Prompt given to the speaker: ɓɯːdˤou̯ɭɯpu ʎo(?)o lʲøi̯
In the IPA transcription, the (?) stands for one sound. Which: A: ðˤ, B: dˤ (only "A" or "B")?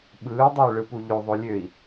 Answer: A